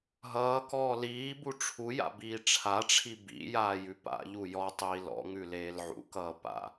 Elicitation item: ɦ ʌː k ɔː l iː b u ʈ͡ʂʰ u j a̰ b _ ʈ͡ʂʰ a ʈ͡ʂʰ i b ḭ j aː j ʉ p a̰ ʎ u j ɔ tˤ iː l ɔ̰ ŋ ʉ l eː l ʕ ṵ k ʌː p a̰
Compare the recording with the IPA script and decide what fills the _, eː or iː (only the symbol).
iː